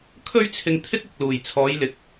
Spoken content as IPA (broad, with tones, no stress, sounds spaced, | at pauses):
kʰ ɵ˥ ɥ t͡sʰ ɪ˧ ŋ t̪ʰ ɪ˥ k̚ ɪ˨ k̚ l uː˨˩ j t͡sʰ ɔː˨˧ j l ɪ˨˥ k̚